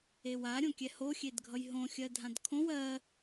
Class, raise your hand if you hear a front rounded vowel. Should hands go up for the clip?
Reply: no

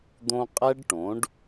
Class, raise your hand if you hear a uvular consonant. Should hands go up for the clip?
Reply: yes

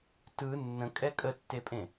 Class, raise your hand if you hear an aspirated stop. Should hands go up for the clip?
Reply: no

